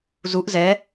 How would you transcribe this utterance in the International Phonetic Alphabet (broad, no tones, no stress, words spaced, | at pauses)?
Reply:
zuʔ zɛ